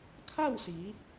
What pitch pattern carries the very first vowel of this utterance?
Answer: falling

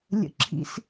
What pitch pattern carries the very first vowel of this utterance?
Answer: high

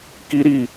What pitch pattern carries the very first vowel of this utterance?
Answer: high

